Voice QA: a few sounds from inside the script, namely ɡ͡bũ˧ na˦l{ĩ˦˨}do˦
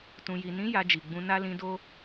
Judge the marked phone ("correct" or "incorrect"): incorrect